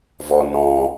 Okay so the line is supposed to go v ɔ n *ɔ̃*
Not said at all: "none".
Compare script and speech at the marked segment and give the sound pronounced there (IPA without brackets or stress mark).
ɔ̃